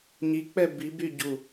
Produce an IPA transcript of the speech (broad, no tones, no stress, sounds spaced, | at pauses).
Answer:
ɲ i k͡p ɛ b i b y ɟ u